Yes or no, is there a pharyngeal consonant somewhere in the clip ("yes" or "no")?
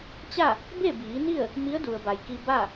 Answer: no